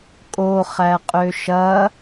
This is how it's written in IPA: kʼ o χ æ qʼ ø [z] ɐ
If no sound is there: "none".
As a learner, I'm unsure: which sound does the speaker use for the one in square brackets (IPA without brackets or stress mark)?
ʃ